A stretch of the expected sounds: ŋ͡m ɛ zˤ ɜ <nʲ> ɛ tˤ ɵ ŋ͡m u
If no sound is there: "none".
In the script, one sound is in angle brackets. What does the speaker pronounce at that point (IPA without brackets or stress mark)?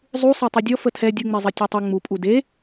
tʲ